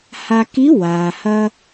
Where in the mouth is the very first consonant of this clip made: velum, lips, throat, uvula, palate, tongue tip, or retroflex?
throat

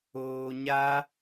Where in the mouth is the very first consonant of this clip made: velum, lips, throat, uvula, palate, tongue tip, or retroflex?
palate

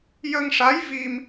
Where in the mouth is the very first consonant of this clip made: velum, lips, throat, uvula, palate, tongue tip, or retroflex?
palate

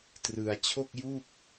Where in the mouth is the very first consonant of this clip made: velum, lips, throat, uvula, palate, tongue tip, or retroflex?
tongue tip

